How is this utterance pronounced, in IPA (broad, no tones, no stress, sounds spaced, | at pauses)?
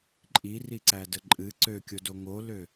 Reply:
ǃʼ i r i ǀ æ d ə ǃʼ ɨ ǀ ø kʲ o d o ŋ o l ø